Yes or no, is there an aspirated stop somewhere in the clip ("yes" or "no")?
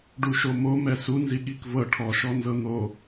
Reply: yes